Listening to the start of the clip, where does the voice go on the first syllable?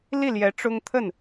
falling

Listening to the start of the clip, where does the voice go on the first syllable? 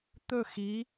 falling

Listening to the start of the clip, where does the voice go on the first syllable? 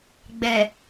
low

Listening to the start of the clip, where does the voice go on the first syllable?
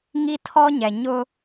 high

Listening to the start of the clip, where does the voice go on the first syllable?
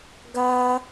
high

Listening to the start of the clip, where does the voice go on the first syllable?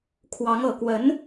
rising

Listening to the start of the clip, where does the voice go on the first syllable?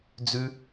high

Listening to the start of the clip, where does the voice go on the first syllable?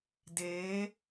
rising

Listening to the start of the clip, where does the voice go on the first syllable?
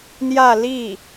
falling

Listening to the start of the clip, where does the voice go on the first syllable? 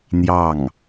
falling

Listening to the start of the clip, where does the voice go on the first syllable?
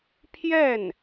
falling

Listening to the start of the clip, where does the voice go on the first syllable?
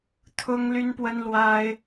high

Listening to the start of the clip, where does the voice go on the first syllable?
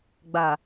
low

